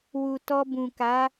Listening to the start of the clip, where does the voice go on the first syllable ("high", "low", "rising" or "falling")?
low